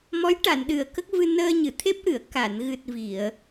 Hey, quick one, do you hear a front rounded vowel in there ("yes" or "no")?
no